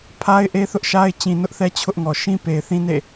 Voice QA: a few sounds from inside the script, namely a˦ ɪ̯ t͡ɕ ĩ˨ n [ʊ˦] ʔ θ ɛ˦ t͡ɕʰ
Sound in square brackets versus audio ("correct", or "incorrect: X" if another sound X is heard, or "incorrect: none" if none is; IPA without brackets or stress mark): correct